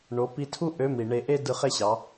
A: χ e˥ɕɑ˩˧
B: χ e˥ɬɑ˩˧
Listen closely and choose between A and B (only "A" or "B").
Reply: A